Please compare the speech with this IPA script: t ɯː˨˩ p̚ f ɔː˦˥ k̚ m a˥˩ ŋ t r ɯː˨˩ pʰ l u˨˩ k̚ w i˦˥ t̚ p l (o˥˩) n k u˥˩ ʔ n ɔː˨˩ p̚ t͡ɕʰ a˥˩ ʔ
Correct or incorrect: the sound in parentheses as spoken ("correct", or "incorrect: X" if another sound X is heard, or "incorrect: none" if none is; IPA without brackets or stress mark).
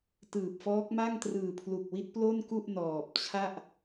correct